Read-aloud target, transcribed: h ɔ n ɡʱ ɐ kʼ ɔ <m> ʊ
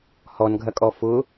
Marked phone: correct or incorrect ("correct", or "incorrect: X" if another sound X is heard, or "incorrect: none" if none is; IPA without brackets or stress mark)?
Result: incorrect: f